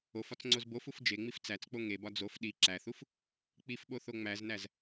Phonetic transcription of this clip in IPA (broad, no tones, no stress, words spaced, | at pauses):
ofɒt͡s ŋ͡ǀozbofuf d͡ʒeŋ͡mif t͡sæt͡sk͡po ŋebɒ d͡zof ɗi ǁæθuf | k͡pifɓo θoŋ͡mæznæz